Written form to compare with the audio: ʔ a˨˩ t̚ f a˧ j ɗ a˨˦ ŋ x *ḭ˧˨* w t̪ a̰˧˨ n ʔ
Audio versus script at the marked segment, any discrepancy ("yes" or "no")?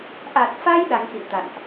no